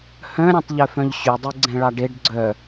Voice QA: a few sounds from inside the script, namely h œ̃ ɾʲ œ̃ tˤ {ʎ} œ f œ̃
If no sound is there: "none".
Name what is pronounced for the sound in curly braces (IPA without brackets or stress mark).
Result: ʎ